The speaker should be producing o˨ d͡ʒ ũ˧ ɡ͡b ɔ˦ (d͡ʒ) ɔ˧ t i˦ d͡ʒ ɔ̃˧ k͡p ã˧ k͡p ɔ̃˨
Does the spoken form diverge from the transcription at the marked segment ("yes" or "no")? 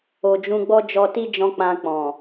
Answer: no